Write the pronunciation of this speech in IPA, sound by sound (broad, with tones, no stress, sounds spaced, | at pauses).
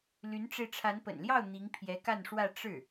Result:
l y˧˥ n ʈ͡ʂ e˧ ɪ̯ ʈ͡ʂʰ a˧˥ n p ə̰˨˩ n l j ɑ˥˩ ʊ̯ n̪ i˧˥ ŋ pʰ j ɛ˧˥ k a˥˧ n ʂ w ä˥˧ ʈ͡ʂ ɻ̩˥˩